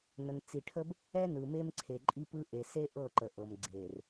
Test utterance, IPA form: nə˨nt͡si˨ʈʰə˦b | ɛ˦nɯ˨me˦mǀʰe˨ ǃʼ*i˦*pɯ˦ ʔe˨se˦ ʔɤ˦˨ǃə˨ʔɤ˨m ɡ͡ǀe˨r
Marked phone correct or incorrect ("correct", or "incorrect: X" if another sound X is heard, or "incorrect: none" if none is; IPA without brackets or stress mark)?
correct